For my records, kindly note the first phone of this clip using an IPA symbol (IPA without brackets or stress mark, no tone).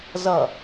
z